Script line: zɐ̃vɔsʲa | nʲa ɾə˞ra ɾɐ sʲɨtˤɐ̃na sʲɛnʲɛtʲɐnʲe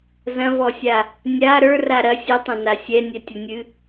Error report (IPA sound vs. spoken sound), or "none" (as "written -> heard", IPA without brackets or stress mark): e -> ɨ